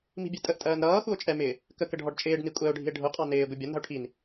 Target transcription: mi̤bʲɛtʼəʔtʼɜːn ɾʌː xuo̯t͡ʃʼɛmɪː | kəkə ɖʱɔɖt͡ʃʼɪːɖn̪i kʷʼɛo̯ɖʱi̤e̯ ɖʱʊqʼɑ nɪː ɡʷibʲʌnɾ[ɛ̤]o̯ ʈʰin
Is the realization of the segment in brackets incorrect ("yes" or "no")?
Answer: yes